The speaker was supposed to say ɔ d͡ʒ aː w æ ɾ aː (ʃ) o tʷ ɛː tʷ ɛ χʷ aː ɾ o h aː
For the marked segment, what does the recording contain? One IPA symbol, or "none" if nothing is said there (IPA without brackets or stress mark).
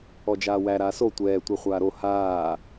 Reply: s